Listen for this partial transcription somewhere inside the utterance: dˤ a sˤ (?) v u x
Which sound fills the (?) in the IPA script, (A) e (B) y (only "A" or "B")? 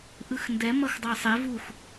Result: A